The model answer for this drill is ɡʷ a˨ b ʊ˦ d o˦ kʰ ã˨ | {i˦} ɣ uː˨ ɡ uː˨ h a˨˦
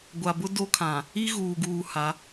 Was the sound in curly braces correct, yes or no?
yes